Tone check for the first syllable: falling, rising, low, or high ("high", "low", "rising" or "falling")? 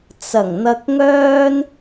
low